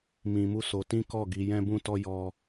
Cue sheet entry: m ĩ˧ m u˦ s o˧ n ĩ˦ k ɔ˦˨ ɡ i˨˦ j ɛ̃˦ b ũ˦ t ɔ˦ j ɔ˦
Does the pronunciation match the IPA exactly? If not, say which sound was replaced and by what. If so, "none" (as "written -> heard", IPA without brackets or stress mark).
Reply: n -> t